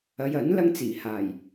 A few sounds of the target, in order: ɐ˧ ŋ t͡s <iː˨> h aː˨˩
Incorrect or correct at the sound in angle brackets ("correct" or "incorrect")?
incorrect